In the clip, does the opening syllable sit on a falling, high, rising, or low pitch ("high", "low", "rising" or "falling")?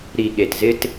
low